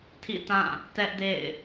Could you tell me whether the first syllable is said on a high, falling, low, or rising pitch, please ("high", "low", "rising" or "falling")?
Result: falling